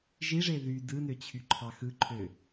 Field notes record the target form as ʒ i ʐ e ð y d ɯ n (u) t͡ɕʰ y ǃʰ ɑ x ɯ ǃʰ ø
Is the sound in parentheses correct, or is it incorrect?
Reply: incorrect